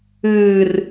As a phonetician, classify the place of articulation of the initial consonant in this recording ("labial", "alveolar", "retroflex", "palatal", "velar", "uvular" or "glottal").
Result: alveolar